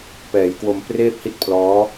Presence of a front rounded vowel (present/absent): absent